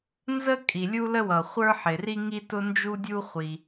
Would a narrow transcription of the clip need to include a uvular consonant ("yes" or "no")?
yes